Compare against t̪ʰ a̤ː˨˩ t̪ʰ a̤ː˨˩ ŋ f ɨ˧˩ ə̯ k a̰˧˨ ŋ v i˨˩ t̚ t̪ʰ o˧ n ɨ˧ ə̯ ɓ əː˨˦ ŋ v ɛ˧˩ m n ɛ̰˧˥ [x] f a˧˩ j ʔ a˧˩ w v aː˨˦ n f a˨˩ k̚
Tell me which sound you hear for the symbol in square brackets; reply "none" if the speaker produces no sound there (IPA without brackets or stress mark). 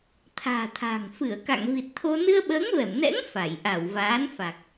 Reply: ŋ